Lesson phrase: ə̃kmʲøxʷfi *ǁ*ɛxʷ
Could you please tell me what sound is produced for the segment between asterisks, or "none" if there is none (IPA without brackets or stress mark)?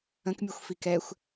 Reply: k